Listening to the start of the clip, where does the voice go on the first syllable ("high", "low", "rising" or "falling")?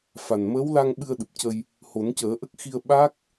low